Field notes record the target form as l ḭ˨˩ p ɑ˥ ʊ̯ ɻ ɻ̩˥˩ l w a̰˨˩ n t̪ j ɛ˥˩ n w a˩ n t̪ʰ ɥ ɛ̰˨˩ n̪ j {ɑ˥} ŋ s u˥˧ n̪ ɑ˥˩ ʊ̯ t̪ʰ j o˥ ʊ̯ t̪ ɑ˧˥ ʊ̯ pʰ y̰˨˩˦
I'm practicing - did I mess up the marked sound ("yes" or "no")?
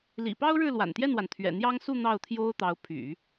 no